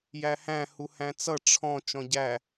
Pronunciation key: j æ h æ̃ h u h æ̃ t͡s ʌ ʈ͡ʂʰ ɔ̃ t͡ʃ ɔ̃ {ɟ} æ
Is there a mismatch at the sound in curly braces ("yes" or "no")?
no